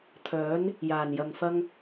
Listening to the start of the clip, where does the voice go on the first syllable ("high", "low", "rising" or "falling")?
rising